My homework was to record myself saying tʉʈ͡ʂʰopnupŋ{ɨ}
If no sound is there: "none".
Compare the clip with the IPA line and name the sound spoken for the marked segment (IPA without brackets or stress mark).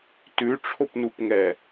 ɛ